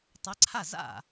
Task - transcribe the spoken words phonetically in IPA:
tˤ ɛ˧˥ ǀʰ a˥˩ z a̰˥˩

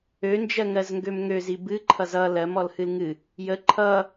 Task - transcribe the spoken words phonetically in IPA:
ø n d͡ʒ ɜ ŋ ɜ z ŋ ɡ ø m ŋ ø z i b ɨ ǃʰ ʌ z ʌ l ɜ m ɔ l h ɨ l ŋ ɨ | j ə ǃʰ ʌ

